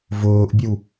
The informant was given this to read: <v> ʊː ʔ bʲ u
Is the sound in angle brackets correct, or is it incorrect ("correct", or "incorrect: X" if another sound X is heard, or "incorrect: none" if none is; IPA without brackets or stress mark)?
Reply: correct